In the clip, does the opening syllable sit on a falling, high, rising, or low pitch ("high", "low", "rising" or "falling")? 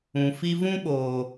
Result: low